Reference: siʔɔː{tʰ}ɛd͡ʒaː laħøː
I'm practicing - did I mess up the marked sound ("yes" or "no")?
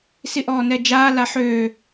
yes